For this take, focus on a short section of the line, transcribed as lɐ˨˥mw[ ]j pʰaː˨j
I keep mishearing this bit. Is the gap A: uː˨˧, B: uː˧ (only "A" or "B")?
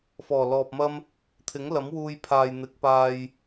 B